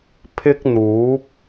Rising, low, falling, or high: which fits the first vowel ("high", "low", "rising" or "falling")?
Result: high